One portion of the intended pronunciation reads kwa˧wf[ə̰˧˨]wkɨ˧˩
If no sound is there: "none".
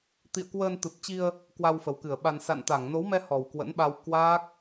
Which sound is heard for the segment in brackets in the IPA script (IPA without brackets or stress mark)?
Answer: ə˨˩